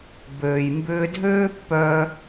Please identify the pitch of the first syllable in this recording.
low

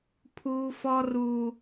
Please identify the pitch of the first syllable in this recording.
high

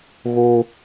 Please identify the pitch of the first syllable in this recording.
high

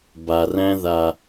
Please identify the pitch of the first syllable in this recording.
low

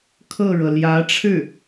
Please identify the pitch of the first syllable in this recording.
falling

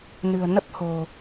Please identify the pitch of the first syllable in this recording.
low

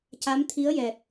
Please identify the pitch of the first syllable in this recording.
rising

